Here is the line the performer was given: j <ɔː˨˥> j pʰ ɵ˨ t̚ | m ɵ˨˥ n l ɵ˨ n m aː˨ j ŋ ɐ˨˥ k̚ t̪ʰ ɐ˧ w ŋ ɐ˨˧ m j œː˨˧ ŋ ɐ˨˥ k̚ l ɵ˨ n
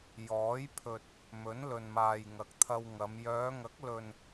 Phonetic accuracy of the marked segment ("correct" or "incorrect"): correct